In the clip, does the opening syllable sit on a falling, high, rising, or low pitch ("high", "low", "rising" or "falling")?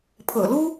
low